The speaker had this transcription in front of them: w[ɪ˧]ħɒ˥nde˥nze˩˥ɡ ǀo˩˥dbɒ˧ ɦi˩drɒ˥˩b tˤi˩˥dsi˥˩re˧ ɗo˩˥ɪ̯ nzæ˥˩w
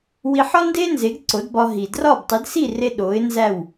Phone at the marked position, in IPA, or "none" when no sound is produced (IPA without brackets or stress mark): i˧